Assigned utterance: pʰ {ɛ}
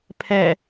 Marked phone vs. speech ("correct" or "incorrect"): correct